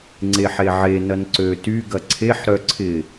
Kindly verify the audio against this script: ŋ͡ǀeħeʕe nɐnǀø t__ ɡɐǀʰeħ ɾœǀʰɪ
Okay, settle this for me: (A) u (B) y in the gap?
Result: B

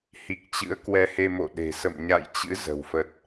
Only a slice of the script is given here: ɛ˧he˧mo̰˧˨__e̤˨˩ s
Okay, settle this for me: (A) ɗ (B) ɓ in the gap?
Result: A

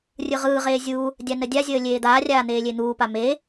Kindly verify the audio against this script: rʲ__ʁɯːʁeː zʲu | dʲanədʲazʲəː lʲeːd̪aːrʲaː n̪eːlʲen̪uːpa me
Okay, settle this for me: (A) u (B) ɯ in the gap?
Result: B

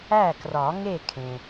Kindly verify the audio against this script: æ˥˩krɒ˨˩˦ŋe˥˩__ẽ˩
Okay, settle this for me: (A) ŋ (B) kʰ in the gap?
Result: B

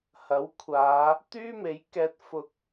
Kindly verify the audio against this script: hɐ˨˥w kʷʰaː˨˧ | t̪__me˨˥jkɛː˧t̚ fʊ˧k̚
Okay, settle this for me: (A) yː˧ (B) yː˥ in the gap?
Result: B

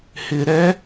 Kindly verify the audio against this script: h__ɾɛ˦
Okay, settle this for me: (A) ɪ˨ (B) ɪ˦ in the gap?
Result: A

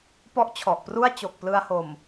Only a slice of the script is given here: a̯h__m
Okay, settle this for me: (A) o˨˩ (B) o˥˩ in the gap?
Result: A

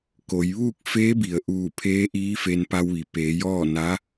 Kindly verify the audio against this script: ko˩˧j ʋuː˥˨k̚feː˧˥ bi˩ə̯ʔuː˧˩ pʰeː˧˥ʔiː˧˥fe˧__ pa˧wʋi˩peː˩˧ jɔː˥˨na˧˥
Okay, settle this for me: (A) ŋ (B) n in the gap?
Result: B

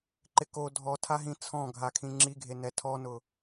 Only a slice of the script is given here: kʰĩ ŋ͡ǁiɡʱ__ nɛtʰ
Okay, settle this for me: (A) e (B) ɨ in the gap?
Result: A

